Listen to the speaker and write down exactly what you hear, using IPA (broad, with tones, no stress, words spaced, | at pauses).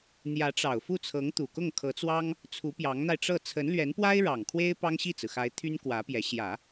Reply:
n̪jä˧˥ʈ͡ʂɑ˨˩ʊ̯fu˥˩ t͡sʰɤ˧˥ŋ t̪u˨˩kʊ˥˩ŋkʰɤ˧˥t͡swɑ˥ŋ | t͡sʰu˧˥pjɑ˧˥ŋn̪a˧ɪ̯ʈ͡ʂɤ˥˩ t͡sʰə˧˥nlɥɛ˧˥npwa˥ɪ̯ ɻɑ˨˩ŋ kʰwe˥ɪ̯ pɑ˥ŋɕi˥˩t͡sɹ̩˩xa˧˥ɪ̯ t̪ʰy˥nkwä˧˥pjɛ˧˥ ɕjä˨˩˦